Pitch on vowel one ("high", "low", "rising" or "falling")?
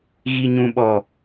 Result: low